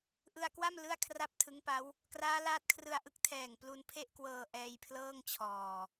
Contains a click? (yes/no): no